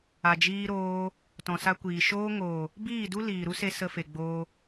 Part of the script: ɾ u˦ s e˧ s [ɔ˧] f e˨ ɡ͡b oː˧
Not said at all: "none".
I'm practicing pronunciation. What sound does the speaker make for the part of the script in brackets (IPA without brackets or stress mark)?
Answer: ə˧